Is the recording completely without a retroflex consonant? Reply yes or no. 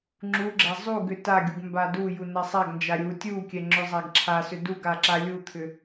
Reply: yes